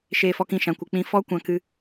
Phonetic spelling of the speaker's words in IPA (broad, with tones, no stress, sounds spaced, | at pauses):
ʃ eː˧ f ɔ˧ k ĩ˧ ʃ ã˨ kʷ ɨ˨ k͡p ĩ˧ f ɔ˦ kʷ ã˧ k ɨ˧